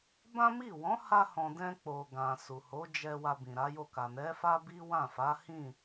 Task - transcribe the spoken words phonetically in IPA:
b ã˦ m i˦˨ w ɔ̃˨˦ h a˧ h ɔ̃˨ d ɛ̃˧ k͡p o˨ ɡ ã˨ s u˨ h o˨˦ d͡ʒ ɛ˧ w a˧ b ĩ˨ ɾ a˨˦ j o˦˨ k a˨ n ɛ˨˦ f a˦ b i˦ w ã˦˨ f a˨˦ h ĩ˦˨

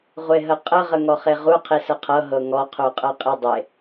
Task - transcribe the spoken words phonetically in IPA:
ʁʷ e ɦ ə qʼ ə ʁ ə ŋ ɔ χ e ʁ u qʰ i s ə qʰ ɤ ɦ ɤ ŋ ɔ qʰ u qʼ ɤ qʼ i dˤ e

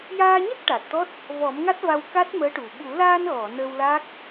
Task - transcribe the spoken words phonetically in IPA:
j aː˧ ɲ a˦˥ k̚ ʈ a˨˩ t̚ t̪ ɔ˦˥ t̚ | v ɔ˨˩˦ m ŋ a˦˥ t̚ v a˧ w k a˦˥ t̚ m əː˧˥ ʈ u˨˩ ɓ u˨˩˦ l aː˧ n ɣ ɔ˨˩˨ n əː˧ w l a˦˥ k̚

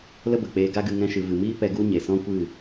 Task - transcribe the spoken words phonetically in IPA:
l ə˦ b ə˨ k͡p eː˧ ɡ a˦ ɡ ɨ˧ ŋ ɛ̃˦ ʃ ɨ˨ v ɨ˨ m iː˦ p ɛ˧ ɡ u˦ ɲ e˨ s ɔ̃˦ kʷ ɨ˦˨

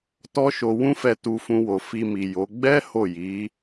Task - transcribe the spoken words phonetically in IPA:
t ɔ˦ ʃ o˧ w ũ˦ f ɛ˧ t u˧ f ũ˧ w o˨ f i˧ m i˨ j o˨˦ ɡ͡b ɛ˦ h o˦˨ j i˨˦

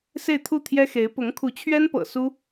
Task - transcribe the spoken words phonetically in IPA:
s e˥˧ ɪ̯ t̪ʰ u˥˩ t̪ʰ j ɛ˥ x e˧˥ ɪ̯ p ʊ˧˥ ŋ kʰ u˧˥ t͡ɕʰ ɥ ɛ˥ n p ɤ̰˨˩ s u˥

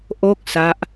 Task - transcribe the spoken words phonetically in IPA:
ʔ o˥˩ k̚ s a˦˥ ʔ

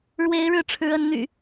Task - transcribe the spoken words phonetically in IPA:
ɻ w e˨˦ ɪ̯ ɻ ɻ̩˥˨ ʈ͡ʂʰ ɻ̩˨˦ ə˨˦ n n̪ y̰˨˩

